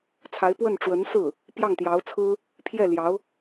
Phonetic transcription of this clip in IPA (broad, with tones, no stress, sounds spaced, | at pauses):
t͡sʰ a˧˥ ɪ̯ p w ə˥˩ n ʈ͡ʂ w ə˧˥ n s ɹ̩˥˩ | p j ɑ˥˩ ŋ t̪ j ɑ˧˥ ʊ̯ t͡sʰ ɹ̩˥ | pʰ j ɛ˥˩ l j ɑ˧˥ ʊ̯